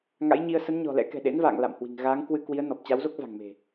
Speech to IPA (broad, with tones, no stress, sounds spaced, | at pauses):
ŋ a̰˧˥ j ɲ i˧ ə̯ s ə˨˦ n ɲ ɔ̤˨˩ l ɛ̰˧˥ k ɛ̤˨˩ ɗ ḛ˧˥ n v a̰ː˧˨ ŋ l a̰˧˨ m h w i̤˨˩ ŋ ɣ aː˨˦ ŋ k w ɨ˧ k w i˨˦ ə̯ n ɔ˨˩ p̚ t͡ɕ a˨˦ w z o˦˥ k̚ v a̤˨˩ ŋ m e̤˨˩